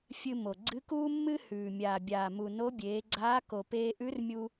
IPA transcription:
fʲ ɨ˧ m o˩ ɡ͡ǀ ɨ˧˥ k uː˥ mː ɨ˥ h ʉː˩ mʲ aː˩ bʲ aː˩ m u˩ n o˧˥ bʲ eː˩˧ ɡ͡ǀ aː˧˥ k o˩ p eː˧ ʔ ʉ˧˥ r mʲ u˧

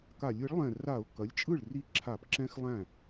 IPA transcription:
k a˧˩˧ lʲ ɯ˩˥ ɭ lˠ ɛ̃˧˩ r a˧˩˧ ʊ̯ k ɐ˩˥ lʲ t͡ʃʼ ɯ˥˩ ɭ r i˥˩ ǁʰ a˧˩˧ p ǁ ɛ̃˦˥ x lˠ æ̃˥˩

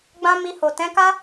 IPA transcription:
ɡ͡b ã˦ m i˧ h o˨ t ɛ̃˨˦ k a˦

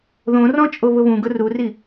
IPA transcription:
ð õ r ɔ̃ t͡ʃʼ o β ʊ β ũ ɡ ʊ r u r i

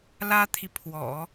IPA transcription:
l ä˥ t̪ʰ i˨ pʰ w ɔ̰˨˩˦

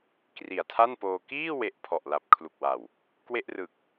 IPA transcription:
k r i˨˩ a̯ tʰ a˥˩ n p oː˧ k iː˥˩ w e˨˩ ʔ pʰ ɔ˨˩ ʔ l a˨˩ p̚ kʰ l u˨˩ k̚ w a˨˩ w | k w e˥˩ ʔ r ɯ˨˩ k̚

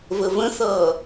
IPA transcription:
v ə v ə̃ θ ʌː

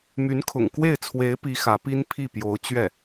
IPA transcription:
m y˧˥ n kʰ ʊ̰˨˩ ŋ k w e˥˩ ɪ̯ t͡sʰ w e˧˥ ɪ̯ p i˧˥ x ä˧˥ p i˥ n pʰ i˥˩ p j o˧˥ ʊ̯ t͡ɕ ɥ ɛ˥˩

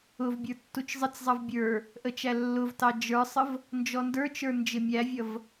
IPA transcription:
ʊ v bʲ ə˞ tː u t͡ʃ zˤ ɪ t͡s zˤ ʌ v bʲ ə˞ | ʔ ə t͡ʃ æ lː ʊ v t ɑ d͡ʒ ə˞ sˤ ə v | n d͡ʒ ɔ n d ə˞ t͡ʃ ə˞ n d͡ʒ ɪ mʲ æ vʲ ʌ v

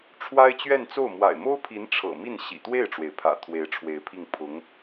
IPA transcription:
ʈ͡ʂʰ w a˥ ɪ̯ t͡ɕ ɥ ɛ˥˧ n t͡s o˥˩ ʊ̯ m w a̰˨˩ ɪ̯ m o˥ ʊ̯ pʰ i˧˥ n ʈ͡ʂʰ ɤ̰˨˩ m i˥˩ n ɕ ḭ˨˩ t̪ w e˥˩ ɪ̯ ʈ͡ʂ w e˩ ɪ̯ pʰ ä̰˨˩ t̪ʰ w e˧˥ ɪ̯ ʈ͡ʂʰ w e˧˥ ɪ̯ pʰ i˥˩ ŋ pʰ ʊ˧˥ ŋ

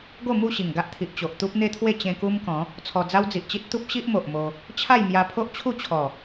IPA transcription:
ɡ o˥˧ m u˥˧ ɕ i˨˩ ŋ ɡ a˦ ʔ t̪ʰ i˨ ʔ t͡ɕ o˨ ʔ t̪ u˦ p̚ n̪ e˦ t̪ʰ w e˥˧ t͡ɕ ẽ˧ k u˦ m k ɔ̃˨˦ | t͡sʰ ɔ˧ d͡z a˦ w d͡z i˨ ʔ t͡ɕ i˦ t̚ t̪ u˦ p̚ ɕ i˦ ʔ m o˨ ʔ m o˧ | t͡ɕʰ a˥˧ j m j a˧ pʰ o˦ ʔ t͡ɕʰ u˥˧ t͡ɕʰ ɔ˨˩

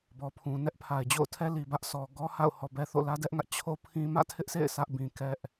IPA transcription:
b ɔ˨ pʰ ũ˨ n ɛ˦ ʔ pʰ a˨ ɪ̯ d͡ʑ o̰˦˨ ʊ̯ tʰ ɛ˦ l i˨ b ä˦ ʔ sʰ ɔ˨ ɡ ɔ˦ h a̰˦˨ ʊ̯ h ɔ˨ b ɛ˦ θ o̰˦˨ l ä˦ d ɛ˦ ʔ ŋ ä˦ ʔ t͡ɕʰ o˦ pʰ ĩ˦ m ä̰˦˨ tʰ ɪ˦ ʔ s ḛ˦˨ ɪ̯ sʰ ä˦ ʔ b ĩ˨ k ɛ˦ ʔ

